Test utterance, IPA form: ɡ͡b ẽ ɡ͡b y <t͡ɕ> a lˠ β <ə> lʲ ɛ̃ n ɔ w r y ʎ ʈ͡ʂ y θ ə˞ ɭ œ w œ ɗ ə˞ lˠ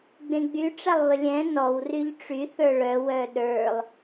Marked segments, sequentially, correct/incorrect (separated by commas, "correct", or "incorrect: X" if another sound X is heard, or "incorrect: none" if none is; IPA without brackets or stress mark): incorrect: ʈ͡ʂ, correct